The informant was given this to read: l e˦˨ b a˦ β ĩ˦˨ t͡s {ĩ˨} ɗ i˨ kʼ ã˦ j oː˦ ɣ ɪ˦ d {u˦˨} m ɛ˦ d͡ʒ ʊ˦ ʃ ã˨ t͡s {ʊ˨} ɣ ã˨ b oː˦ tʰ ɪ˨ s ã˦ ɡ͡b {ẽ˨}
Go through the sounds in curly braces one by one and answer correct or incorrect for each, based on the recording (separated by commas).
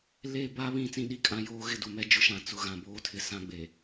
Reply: incorrect, incorrect, correct, incorrect